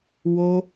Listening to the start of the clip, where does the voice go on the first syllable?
high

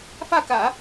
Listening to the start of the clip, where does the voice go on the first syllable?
falling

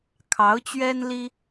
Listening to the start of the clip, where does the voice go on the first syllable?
rising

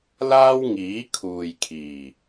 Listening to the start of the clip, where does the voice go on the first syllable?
high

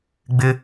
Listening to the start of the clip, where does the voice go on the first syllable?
high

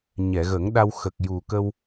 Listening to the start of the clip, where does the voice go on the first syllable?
low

